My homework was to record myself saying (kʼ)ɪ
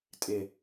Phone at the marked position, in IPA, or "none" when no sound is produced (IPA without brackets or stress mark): tʼ